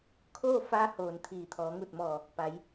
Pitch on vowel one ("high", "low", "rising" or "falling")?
falling